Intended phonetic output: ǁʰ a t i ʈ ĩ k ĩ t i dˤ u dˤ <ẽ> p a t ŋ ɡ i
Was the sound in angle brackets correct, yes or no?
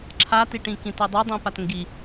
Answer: no